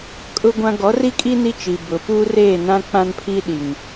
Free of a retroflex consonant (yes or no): yes